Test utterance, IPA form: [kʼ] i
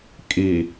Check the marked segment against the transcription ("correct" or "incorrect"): correct